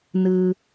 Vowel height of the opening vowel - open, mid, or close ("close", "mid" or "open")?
close